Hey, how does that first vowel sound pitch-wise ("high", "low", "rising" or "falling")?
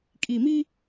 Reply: low